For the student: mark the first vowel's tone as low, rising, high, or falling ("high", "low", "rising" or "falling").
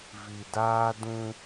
low